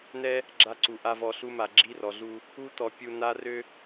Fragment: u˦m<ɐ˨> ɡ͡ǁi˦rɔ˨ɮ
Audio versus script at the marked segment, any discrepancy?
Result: yes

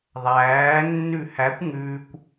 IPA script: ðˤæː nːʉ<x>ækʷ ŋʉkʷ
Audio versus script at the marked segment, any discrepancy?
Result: yes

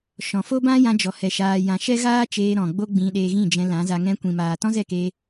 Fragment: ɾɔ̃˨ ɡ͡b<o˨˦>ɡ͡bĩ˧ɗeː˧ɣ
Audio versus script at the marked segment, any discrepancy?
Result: yes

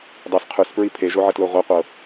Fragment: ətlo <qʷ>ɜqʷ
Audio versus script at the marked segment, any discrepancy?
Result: yes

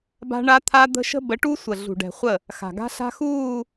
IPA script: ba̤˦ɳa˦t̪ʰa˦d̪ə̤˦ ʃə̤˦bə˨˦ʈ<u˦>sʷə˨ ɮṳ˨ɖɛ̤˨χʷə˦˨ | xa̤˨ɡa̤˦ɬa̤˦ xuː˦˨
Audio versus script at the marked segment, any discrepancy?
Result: no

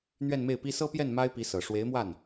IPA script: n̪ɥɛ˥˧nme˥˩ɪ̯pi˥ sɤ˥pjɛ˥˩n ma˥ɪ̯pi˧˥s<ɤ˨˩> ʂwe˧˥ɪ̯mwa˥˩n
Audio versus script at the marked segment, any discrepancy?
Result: no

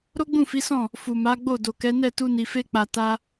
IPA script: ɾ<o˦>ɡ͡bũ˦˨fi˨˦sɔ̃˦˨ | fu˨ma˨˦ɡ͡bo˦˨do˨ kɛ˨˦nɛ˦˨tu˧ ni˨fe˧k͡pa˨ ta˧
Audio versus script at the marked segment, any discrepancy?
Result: no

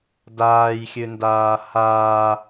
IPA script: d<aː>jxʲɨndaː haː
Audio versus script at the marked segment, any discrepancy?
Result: no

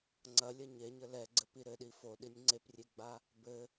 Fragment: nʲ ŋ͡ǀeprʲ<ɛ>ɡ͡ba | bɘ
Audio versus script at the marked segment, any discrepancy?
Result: yes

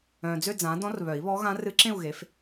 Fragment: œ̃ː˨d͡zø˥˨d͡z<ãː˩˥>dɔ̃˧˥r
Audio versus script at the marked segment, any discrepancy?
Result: no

